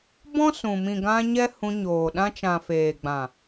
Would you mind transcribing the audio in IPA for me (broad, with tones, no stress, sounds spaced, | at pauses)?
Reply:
b ɔ̃˦ s ũ˨ m ĩ˨ ɡ ã˧ ɲ ɛ˦ h ũ˧ ɲ oː˨ ɗ ã˧ t͡ʃ ã˨ f eː˨ ɡ͡b ã˨